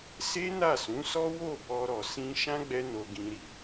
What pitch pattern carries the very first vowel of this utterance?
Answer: high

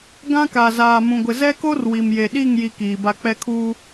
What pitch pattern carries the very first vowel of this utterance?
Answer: high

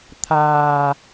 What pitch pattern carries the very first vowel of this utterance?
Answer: low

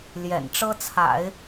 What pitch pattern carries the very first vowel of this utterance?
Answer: low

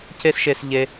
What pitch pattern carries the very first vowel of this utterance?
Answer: high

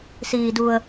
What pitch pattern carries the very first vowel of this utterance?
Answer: low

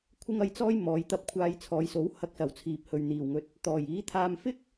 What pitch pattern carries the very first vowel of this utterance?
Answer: high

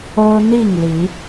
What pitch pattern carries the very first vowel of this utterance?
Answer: high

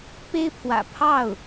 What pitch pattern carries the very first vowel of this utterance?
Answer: high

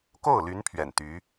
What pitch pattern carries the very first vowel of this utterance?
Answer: falling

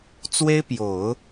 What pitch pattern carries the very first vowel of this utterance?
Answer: high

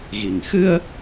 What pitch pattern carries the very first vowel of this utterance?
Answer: low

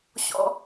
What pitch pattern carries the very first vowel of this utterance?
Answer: high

